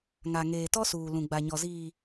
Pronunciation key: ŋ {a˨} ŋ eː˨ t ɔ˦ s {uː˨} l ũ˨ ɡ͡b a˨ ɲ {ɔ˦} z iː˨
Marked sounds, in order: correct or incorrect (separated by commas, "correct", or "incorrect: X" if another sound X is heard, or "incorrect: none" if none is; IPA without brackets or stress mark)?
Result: correct, correct, incorrect: ɔ˨